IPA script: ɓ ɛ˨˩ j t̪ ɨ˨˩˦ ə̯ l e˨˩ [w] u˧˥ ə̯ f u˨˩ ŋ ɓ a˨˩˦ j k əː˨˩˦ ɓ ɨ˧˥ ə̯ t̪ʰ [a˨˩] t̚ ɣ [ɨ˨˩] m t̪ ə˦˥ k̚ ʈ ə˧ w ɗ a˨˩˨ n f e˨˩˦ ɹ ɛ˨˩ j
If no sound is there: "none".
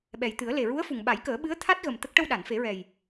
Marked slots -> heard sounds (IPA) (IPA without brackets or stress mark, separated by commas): ɹ, a˦˥, ə˨˩